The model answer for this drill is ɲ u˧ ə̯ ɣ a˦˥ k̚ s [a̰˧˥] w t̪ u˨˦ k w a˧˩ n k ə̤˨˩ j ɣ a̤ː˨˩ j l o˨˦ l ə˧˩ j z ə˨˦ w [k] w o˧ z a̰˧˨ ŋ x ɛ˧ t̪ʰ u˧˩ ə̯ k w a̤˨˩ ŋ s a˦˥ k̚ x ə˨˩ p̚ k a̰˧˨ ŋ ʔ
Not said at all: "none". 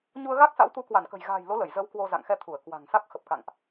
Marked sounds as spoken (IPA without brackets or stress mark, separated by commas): a̰˧˥, k